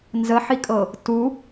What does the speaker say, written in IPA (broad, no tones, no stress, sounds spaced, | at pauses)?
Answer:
n z ə ħ i kʼ ɤ | t u